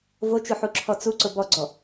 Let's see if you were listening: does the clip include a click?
yes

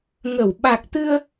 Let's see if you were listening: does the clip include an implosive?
yes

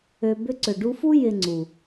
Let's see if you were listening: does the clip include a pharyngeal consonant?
no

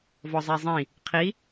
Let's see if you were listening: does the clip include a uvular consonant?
yes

